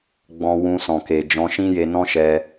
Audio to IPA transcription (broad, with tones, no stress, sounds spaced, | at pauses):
ɡ͡b ɔ̃˧ w ũ˧ s ɔ̃˨ k e˨ d͡ʒ ɔ̃˧ ʃ ĩ˦ j e˧ n ɔ̃˦ ʃ ɛ˧